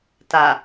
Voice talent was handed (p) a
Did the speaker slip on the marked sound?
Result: yes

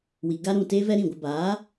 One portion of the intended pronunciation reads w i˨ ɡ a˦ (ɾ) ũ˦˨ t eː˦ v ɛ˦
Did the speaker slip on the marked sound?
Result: no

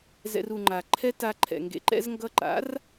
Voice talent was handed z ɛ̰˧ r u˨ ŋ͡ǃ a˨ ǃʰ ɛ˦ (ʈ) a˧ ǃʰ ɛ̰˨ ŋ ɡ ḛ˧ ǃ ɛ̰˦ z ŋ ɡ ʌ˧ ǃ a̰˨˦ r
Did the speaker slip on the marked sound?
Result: yes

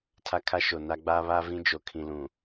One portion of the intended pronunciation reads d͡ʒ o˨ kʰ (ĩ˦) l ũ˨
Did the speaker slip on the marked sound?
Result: yes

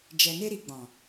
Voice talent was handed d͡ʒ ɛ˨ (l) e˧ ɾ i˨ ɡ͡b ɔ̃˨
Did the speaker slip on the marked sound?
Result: yes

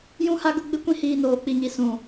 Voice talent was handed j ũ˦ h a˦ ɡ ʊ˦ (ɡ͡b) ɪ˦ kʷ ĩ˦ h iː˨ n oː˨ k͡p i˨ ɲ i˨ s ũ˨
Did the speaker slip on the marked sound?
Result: no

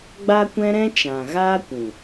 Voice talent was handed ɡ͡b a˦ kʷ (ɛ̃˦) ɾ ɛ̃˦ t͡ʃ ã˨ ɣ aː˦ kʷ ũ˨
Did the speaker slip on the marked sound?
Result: no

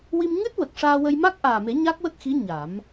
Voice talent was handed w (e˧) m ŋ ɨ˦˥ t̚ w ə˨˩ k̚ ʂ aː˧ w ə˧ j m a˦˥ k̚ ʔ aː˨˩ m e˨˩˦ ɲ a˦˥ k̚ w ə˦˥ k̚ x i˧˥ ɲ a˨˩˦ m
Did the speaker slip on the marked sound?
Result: yes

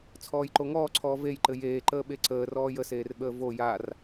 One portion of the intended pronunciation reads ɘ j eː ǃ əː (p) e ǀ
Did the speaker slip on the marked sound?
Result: yes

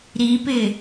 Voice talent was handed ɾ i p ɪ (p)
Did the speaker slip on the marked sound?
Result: yes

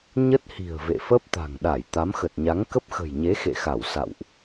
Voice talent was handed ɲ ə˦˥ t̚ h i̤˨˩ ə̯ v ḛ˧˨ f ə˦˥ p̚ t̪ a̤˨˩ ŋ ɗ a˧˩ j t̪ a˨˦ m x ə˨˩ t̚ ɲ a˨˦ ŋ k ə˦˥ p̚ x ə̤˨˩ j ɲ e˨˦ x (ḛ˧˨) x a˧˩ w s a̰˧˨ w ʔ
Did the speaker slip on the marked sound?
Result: no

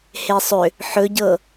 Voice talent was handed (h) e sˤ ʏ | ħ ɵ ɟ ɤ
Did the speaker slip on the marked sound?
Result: no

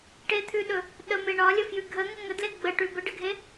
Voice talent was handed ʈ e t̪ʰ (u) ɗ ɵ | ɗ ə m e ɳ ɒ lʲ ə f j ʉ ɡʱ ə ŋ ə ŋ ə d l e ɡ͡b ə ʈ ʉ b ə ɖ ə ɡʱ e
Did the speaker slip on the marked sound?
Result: yes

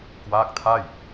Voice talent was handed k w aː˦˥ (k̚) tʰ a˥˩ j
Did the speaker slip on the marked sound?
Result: no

